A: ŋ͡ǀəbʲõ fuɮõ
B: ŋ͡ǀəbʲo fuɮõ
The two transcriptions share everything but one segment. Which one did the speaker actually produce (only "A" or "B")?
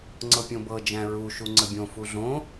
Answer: A